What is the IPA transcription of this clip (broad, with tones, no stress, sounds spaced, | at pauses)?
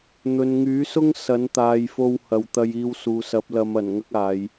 n̪ ɵ˨ n ŋ yː˨˥ s ʊ˥ ŋ s ɐ˨˥ n t̪ aː˨ j f o˧ w h ɐ˨ w t̪ ɐ˧ j iː˧ w s uː˨ s ɐ˨˥ p̚ l ɐ˨˧ m ɐ˨˩ n ŋ ɐ˥ k̚ aː˨˧ j